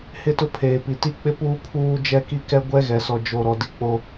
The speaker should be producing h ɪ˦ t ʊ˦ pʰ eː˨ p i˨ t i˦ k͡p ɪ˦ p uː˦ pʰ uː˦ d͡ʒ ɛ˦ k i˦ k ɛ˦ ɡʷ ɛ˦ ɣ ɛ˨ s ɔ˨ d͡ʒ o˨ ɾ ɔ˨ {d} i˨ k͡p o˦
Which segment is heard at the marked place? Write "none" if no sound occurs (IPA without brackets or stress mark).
d